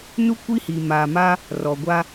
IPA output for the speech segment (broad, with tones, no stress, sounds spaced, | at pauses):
n u˦ kʷ i˦ h iː˨ m aː˨ m a˦ | r ɔ˨ ɡʷ a˦